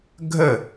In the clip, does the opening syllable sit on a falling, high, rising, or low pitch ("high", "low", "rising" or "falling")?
falling